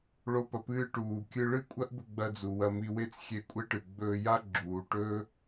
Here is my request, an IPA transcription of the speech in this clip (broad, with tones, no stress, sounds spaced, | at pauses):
ɭ o˥ p ɐ˧ p ɨː˥ ʈ uː˩ kʲ ɨ˧ ɭ ɨ˥ kʷʼ ɐ˥ ʔ b ɵ˧ ɡ͡b ɐ˧ d͡z u˩ w ɐ˧ m i˧ w e˥ t͡s xʲ e˧ kʷʼ e˥ ʈ ɨ˩ ɡ͡b ɵː˧ j a˥ ɡ͡ǁ uː˩ ʈ ɵː˥